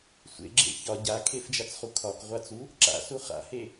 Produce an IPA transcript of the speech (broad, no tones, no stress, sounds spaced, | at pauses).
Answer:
sʷ ḛ ɡ͡ǁ ḛ ç ɒ ɟ a kʰ e f d͡ʒ a t͡s χ u kʰ ɒ k ʁʷ a t͡s u | ǁ a̰ s u χ a̰ h e